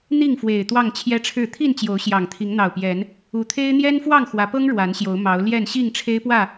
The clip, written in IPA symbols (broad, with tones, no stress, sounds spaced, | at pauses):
n̪ i˥˨ ŋ f w e˨˩ ɪ̯ t̪ w ɑ˥˨ ŋ t͡ɕʰ j ɛ˦ ʈ͡ʂʰ ɻ̩˥˨ t̪ʰ i˥˨ n t͡ɕ j o˨˦ ʊ̯ ɕ j ɑ˨˩ ŋ t̪ʰ i˨˦ ŋ n̪ ɑ˨˩ ʊ̯ p j ɛ˨˦ n | u˨˦ t̪ʰ e˦ ɪ̯ n̪ j ɛ˦ n f w ɑ˥˨ ŋ x w ä˨˦ p ɤ˦ ŋ ɻ w a˨˦ n ɕ j o˨˦ ʊ̯ m ɑ˨˦ ʊ̯ l j ɛ˥˨ n ɕ i˥˨ ŋ ʈ͡ʂʰ e˦ ɪ̯ p w ä˥˨